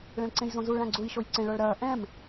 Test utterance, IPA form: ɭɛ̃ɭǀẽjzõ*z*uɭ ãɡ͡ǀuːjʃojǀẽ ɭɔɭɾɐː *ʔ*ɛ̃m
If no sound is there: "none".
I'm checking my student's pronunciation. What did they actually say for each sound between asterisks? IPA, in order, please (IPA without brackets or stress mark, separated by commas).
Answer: z, ʔ